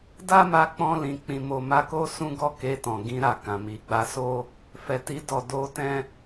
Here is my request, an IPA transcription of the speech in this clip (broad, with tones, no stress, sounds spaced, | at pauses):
d a˦ m a˧ k͡p ɔ̃˧ l ĩ˨ k͡p ĩ˨ m o˨ m a˧ k o˦ s ũ˦ ɡ ɔ˦ k e˧ t ɔ̃˨ ɡ ĩ˧ ɾ a˨ k ã˨ m i˨ ɡ͡b a˧ s o˦ | f ɛ˨ t i˧ d ɔ˨ d o˧ t ɛ̃˦